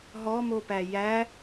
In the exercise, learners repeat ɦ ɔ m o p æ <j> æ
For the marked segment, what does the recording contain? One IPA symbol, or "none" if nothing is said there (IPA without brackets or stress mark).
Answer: j